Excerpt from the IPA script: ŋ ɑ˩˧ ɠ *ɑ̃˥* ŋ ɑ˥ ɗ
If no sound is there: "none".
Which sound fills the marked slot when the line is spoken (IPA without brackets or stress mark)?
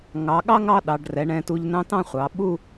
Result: ɑ˥